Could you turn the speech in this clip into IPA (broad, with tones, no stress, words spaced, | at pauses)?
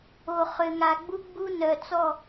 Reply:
o˨ χø˨ŋa˨ɡ͡bu˦ ɡ͡bu˦nœ˨ t͡sɔ˦˨